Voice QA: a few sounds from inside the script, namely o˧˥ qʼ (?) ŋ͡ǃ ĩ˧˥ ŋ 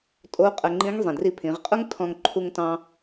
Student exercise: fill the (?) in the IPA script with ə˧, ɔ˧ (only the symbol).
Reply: ə˧